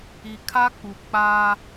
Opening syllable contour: low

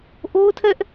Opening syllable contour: high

